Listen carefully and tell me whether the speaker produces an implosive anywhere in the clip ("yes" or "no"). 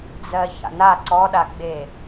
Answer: yes